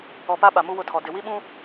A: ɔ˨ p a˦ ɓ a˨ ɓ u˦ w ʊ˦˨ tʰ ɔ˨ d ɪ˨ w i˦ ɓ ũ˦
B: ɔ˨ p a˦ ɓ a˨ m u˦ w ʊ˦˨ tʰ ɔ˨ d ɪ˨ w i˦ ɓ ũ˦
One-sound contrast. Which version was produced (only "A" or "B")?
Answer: B